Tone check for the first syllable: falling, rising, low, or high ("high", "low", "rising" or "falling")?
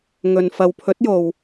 low